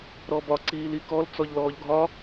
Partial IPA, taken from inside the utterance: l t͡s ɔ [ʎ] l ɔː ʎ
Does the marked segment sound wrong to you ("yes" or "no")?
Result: no